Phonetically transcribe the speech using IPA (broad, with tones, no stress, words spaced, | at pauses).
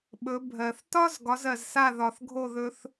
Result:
ɓɵ˩˥ bʱɜ˩θtɒ˥z ɡɒ˩˥zɜ˩zsa˥˩ ðɒ˩θɡʱo˥˩ðɵ˧θ